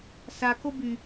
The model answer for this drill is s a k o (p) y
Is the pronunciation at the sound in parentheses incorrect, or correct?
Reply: incorrect: b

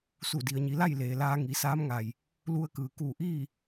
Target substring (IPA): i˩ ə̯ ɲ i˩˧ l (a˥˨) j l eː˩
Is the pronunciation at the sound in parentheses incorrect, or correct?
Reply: correct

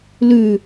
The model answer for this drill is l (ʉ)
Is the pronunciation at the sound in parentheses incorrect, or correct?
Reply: correct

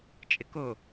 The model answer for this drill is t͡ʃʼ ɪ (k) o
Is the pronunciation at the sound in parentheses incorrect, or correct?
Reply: correct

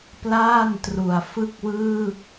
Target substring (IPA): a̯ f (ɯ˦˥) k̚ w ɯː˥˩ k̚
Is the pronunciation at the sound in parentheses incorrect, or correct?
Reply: incorrect: ɯ˥˩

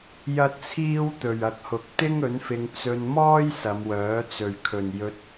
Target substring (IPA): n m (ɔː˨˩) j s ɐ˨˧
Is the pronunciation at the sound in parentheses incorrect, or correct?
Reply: incorrect: ɔː˥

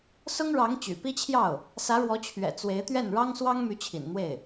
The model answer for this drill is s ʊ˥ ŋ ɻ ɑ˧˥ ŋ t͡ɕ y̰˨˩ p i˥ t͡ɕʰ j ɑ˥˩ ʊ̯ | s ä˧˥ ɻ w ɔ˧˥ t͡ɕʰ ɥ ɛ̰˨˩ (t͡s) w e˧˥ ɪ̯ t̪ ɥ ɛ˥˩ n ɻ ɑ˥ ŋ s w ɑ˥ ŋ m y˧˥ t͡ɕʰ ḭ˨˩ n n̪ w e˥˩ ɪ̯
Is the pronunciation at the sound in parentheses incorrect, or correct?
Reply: correct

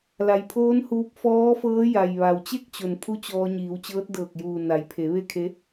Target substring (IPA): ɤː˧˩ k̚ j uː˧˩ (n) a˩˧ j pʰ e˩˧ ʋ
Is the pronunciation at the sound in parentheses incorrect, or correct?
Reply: correct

